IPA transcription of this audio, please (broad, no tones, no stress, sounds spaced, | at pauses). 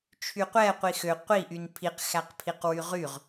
t͡ʃʰ y qʷ ɛ qʷ i x ø qʷ i ʔ y n pʰ i q x æ q pʰ i q w y ʁ y ʁ